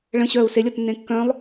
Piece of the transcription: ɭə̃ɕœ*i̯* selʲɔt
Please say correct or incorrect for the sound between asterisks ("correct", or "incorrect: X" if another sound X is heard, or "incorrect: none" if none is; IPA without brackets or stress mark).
incorrect: u̯